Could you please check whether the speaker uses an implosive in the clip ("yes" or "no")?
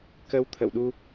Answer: yes